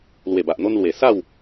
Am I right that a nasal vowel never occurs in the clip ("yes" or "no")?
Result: yes